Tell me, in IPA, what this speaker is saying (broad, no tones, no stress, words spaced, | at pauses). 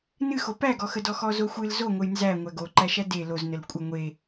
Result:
nɨxo pæɡɔxədɔ xɔzoxʷɨl zoŋʷəj nzæ ŋʷæɡoǃæʃæ de loznəl kʷʼə ŋʷe